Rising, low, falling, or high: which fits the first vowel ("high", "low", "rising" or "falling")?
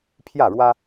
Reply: falling